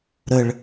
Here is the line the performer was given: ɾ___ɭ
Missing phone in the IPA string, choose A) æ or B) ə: B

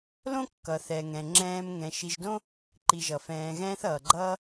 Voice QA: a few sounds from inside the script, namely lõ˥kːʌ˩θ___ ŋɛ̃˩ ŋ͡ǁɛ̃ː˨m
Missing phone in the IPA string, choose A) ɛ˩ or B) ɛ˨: A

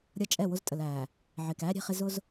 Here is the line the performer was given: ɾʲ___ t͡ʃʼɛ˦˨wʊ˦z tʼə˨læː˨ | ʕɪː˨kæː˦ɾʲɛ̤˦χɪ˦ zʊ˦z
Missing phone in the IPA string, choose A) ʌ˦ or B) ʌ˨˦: A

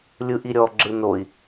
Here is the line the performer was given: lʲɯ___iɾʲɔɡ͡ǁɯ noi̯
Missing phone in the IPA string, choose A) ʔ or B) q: A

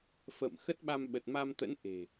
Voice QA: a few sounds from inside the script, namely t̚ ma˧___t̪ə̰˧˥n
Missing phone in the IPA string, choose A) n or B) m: B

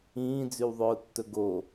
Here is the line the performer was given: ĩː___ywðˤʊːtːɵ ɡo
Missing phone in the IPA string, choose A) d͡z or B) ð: A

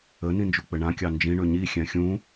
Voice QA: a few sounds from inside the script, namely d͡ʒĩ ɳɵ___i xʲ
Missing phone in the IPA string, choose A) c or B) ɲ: B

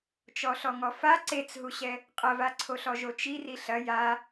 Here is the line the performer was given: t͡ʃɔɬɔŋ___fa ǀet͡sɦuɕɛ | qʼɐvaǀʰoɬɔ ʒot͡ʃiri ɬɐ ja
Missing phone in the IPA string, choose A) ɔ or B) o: A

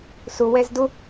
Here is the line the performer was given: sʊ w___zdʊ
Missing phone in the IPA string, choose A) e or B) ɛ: B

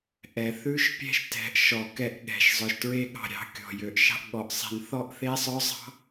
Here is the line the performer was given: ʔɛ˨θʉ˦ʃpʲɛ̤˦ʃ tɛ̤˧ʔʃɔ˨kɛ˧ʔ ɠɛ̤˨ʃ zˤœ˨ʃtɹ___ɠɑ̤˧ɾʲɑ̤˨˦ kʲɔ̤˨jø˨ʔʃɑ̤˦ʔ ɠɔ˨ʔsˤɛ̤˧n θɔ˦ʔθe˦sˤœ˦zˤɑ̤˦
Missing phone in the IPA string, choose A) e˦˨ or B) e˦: B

